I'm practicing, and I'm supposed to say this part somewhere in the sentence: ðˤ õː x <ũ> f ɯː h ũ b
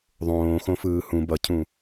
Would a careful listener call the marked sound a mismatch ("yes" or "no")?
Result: yes